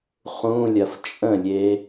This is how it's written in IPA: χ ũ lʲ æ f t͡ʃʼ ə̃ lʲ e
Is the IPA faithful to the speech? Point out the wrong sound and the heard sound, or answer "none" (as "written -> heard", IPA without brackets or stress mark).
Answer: æ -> ɐ